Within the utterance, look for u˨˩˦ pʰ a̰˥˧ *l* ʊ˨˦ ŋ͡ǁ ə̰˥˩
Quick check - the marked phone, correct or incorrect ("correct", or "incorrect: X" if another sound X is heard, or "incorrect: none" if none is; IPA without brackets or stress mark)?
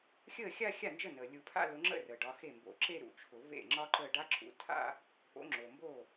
correct